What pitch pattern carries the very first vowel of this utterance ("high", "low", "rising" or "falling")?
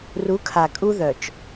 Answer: rising